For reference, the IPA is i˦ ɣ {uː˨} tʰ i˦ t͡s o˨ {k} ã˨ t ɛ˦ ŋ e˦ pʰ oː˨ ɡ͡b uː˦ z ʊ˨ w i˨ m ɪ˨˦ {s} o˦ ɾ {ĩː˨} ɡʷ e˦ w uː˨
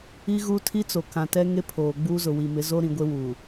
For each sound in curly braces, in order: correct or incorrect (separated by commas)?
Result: incorrect, correct, incorrect, incorrect